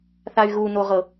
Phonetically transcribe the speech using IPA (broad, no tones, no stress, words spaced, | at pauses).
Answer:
θay̯ɣunoʁɤ